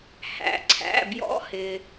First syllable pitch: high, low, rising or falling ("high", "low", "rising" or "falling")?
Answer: low